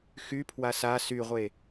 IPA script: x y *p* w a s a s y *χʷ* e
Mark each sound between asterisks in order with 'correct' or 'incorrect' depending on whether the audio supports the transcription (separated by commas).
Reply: incorrect, incorrect